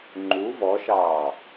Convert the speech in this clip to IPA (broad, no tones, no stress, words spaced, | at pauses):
ŋ͡ǃu vɔʃɑː